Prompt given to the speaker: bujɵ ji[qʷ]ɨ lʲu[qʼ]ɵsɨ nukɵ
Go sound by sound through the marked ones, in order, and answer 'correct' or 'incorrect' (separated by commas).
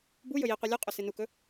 correct, correct